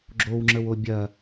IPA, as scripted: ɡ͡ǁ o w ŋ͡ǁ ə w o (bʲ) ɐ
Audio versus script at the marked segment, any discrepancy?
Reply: no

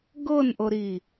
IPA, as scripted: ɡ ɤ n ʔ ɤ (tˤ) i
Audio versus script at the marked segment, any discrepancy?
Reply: yes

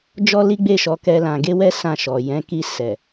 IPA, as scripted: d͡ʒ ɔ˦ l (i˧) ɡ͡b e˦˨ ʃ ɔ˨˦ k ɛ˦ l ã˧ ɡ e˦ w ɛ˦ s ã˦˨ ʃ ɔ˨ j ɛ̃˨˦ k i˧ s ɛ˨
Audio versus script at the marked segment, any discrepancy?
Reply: yes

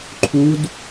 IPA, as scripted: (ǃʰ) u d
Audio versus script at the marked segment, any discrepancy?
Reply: no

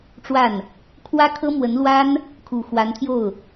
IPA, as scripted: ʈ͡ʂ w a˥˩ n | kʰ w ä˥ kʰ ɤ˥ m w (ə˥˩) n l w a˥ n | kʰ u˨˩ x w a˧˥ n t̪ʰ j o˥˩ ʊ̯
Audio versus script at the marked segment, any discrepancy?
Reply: yes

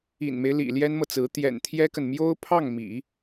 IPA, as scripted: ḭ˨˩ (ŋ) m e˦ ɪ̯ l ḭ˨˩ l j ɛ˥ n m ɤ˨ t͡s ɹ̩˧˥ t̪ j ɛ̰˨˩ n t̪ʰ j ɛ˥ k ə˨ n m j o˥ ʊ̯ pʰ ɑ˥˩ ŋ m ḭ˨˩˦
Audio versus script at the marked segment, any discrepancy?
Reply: yes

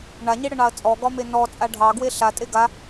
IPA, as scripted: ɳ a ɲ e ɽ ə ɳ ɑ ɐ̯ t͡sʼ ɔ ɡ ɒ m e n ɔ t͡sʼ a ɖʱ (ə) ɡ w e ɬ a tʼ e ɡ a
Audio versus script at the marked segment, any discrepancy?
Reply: yes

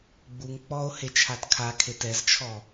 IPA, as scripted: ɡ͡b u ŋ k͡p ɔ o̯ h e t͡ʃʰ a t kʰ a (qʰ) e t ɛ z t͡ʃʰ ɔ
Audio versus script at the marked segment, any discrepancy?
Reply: yes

